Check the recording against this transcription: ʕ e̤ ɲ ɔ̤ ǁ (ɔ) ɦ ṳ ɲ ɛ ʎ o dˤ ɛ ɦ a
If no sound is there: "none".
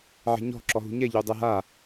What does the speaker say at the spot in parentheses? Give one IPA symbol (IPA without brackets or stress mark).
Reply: ɔ